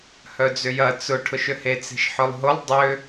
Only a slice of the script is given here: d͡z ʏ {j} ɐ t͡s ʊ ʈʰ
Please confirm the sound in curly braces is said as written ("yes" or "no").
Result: yes